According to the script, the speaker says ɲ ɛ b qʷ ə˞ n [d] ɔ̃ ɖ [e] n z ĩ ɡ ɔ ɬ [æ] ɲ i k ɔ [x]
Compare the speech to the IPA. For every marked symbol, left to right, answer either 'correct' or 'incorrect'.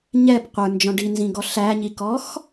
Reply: incorrect, incorrect, correct, correct

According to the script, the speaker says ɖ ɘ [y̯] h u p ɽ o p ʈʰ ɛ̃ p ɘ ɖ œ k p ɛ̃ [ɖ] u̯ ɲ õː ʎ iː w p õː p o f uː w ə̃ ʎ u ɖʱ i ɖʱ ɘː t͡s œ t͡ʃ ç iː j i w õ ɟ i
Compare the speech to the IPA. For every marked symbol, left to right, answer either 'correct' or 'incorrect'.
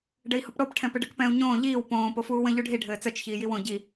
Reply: incorrect, incorrect

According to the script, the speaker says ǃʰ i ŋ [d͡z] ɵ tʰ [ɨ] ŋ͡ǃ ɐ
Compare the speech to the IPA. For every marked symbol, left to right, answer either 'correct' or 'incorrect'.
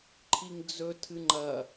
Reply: correct, correct

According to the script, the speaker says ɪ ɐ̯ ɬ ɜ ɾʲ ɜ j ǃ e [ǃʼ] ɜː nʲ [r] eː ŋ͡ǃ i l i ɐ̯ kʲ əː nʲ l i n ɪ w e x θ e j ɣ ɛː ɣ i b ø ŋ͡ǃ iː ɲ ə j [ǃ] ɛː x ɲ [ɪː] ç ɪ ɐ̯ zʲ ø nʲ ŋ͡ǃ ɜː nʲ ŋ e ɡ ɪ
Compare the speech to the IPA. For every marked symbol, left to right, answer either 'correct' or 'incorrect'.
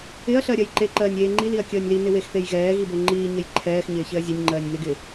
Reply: incorrect, incorrect, incorrect, correct

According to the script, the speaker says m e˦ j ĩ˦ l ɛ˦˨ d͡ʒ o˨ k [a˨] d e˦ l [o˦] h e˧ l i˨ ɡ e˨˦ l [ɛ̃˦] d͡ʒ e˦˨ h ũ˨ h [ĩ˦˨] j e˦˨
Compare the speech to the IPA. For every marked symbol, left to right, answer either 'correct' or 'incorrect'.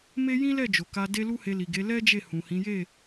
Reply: incorrect, incorrect, incorrect, incorrect

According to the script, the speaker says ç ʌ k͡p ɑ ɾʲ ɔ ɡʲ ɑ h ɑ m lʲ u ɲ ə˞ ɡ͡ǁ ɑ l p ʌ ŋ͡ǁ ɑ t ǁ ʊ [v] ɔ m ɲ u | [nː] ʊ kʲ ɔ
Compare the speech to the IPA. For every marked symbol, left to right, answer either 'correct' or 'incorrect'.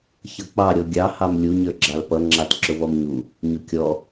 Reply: correct, incorrect

